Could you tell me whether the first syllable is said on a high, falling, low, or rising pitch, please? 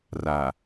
low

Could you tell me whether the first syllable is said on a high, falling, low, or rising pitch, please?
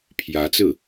rising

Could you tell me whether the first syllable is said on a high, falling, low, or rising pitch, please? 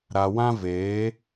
low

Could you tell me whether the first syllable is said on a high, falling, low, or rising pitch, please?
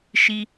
high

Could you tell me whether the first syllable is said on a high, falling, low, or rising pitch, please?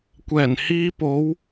low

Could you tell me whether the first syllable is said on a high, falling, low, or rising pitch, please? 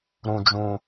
low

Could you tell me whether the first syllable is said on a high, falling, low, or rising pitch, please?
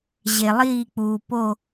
low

